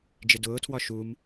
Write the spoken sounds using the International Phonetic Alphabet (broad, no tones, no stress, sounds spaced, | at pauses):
d͡ʒ ɪ d ʊː tʰ w ɒ ʃ u m